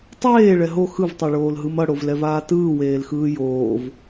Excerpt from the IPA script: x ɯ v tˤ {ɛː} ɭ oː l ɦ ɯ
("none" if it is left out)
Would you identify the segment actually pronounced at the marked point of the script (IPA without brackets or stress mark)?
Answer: ɛ